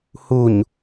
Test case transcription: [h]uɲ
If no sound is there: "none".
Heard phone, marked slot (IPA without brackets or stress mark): h